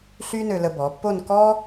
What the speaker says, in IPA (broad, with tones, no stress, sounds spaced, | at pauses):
ɬ y˥ n ø˧ l ə˧ b ɔ˩˧ pː o˥˧ n k ɔ˥